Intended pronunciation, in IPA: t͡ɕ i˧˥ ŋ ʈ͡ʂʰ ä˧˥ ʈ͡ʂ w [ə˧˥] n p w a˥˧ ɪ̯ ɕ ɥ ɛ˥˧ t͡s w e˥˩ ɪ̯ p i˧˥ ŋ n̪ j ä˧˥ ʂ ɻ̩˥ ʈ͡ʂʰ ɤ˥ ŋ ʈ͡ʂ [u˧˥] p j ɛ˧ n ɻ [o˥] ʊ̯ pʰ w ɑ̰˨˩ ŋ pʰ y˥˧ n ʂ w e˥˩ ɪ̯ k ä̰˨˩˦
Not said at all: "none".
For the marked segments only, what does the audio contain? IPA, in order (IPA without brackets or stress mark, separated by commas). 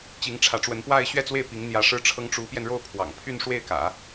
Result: ə˧˥, u˧˥, o˥˩